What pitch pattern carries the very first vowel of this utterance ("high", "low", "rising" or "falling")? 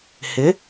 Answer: rising